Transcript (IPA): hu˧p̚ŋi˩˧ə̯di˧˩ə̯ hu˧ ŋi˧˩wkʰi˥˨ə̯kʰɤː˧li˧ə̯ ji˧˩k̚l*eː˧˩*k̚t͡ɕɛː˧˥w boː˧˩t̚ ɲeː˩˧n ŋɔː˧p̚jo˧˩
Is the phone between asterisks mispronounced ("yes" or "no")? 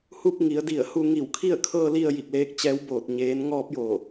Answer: yes